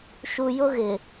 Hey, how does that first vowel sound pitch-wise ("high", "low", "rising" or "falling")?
low